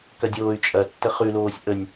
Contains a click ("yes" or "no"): no